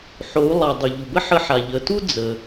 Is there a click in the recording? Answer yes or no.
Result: no